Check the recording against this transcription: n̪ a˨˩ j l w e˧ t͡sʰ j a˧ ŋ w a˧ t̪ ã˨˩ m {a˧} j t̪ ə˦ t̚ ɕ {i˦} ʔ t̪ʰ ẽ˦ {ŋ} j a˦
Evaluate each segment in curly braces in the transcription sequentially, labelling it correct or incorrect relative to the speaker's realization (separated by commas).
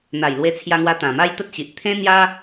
incorrect, incorrect, incorrect